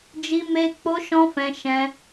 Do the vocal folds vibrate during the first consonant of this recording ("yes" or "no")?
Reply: yes